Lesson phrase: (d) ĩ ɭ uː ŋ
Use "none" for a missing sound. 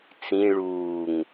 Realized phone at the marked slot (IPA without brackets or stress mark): t͡s